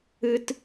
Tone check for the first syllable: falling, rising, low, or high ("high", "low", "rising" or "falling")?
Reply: high